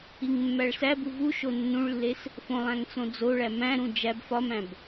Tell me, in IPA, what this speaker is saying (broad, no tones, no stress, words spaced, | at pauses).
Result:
iŋmːæɭsæbu vuʃo nːũɭlːes | fõ lˠæ̃ŋt͡sõd͡zoɭæ mæ̃ɾũ d͡ʒæb fɒmæ̃b